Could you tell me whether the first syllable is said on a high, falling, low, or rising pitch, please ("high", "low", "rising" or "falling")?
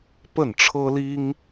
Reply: falling